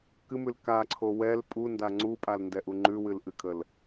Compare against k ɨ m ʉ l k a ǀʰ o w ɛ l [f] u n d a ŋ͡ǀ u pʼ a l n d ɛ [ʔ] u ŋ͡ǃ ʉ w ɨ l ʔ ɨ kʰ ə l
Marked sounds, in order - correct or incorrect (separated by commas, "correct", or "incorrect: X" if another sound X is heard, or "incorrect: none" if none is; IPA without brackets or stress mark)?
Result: incorrect: pʼ, correct